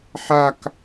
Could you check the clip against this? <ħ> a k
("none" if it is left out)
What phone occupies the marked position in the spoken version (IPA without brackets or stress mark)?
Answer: ħ